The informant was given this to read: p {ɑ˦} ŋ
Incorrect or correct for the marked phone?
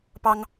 correct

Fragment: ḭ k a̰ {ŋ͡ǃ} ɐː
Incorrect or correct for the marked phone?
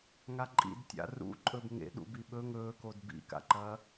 incorrect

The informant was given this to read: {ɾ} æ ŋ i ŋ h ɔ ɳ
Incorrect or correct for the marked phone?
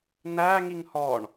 incorrect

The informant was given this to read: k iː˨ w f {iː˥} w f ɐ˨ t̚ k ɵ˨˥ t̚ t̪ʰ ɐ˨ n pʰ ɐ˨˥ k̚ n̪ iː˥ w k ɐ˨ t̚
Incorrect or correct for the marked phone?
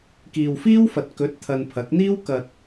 correct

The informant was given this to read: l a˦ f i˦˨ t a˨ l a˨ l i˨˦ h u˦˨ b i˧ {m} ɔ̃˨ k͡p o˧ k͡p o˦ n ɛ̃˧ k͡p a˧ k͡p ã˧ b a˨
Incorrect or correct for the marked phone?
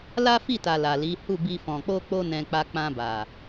incorrect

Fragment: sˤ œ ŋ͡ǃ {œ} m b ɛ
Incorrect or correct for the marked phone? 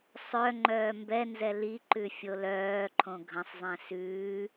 incorrect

